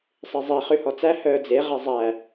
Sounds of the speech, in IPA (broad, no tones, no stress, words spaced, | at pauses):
sˤezˤe χʉhɔt͡sæ hœːd͡ze ʁɛzˤæ